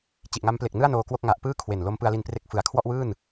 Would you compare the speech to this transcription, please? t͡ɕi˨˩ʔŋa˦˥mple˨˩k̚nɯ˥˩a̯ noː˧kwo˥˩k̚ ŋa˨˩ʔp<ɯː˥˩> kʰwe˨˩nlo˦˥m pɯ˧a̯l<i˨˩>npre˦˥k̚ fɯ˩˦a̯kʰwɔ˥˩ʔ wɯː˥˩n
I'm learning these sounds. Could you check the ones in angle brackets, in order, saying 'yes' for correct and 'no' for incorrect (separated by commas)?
yes, no